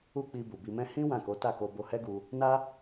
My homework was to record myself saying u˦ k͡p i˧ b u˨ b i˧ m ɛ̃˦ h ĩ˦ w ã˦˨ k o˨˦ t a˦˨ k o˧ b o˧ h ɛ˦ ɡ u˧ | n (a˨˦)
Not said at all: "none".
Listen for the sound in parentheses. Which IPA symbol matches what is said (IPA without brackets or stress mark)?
a˦